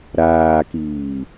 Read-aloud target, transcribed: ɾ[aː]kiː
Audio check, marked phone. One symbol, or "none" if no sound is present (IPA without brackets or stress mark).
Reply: aː